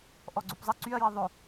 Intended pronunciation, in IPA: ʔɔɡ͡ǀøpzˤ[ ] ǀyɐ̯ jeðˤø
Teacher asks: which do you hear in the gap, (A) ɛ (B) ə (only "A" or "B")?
B